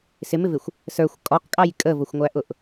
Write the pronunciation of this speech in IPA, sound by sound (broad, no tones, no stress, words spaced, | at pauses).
sɪmɪvɪxʷ | sə˞xʷ kʼɔqkʼɑj kʼəvʊxʷŋʷæʔʊʔ